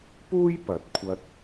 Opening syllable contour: high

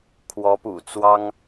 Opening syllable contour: rising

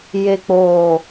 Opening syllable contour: low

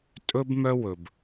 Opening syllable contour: high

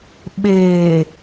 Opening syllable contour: low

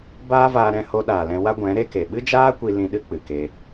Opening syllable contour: high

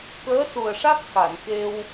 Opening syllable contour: rising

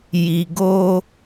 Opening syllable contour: low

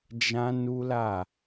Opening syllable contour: high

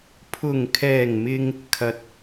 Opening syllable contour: low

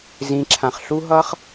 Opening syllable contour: rising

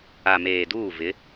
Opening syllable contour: low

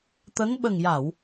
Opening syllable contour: rising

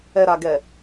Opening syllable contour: low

